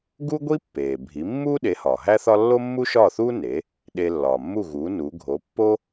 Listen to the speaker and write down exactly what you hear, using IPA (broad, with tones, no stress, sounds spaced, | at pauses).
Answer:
ɡ u˥ ɡʷ i˥ pː eː˩ bʱ i˩˥ mː uː˥ ɗ e˩˥ h ɒː˩ ɦ æ˥ θ ɒ˥ lː o˥ mː u˥ ʃ ɒː˥˩ θ uː˥ n e˩˥ | ɗ e˧ lː ɒː˩ mː u˥˩ ɣ uː˩˥ n u˩˥ ɡʱ o˩˥ pː o˥